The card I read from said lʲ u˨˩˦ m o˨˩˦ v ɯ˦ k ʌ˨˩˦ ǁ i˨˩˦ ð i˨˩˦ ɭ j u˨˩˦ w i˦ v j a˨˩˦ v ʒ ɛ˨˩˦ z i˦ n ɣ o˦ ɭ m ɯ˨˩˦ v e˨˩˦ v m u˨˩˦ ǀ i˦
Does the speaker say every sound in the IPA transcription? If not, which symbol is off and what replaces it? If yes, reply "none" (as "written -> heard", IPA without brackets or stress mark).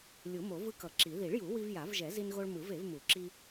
ǀ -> ǁ